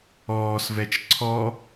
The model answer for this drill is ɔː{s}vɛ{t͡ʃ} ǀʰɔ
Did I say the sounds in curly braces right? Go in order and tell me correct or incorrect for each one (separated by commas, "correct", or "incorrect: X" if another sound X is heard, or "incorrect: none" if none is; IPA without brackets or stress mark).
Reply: correct, correct